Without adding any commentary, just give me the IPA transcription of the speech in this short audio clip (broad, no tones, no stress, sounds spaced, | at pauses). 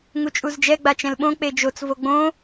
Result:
ŋ u t͡ʃʼ u z d͡ʒ ɛ ɡ͡b a t͡ʃ ɛ̃ l ɓ õ k͡p e d͡ʒ o t͡s v o ɡ͡b õ